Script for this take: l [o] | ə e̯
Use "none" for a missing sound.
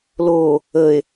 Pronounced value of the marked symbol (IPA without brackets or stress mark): o